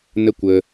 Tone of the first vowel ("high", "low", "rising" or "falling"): high